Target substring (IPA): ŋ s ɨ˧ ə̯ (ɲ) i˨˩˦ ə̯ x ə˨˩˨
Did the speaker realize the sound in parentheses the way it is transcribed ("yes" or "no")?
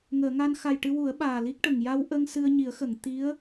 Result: yes